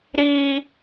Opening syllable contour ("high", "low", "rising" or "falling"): high